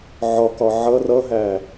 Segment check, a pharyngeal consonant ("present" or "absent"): present